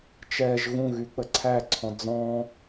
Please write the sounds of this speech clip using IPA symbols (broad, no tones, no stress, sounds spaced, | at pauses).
t͡ʃ ɛ ʒ ɣ ũ ɣ y k͡p ə ǀʰ æ ǀʰ ɔ̃ d͡z ɔ̃